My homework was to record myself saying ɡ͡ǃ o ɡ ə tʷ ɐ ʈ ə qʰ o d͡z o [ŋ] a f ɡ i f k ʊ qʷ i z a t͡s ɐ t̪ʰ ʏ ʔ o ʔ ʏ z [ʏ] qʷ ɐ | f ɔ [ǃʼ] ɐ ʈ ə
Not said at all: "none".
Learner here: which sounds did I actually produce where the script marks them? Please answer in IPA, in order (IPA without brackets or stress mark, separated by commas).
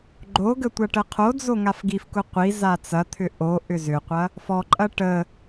ŋ, ʏ, ǃʼ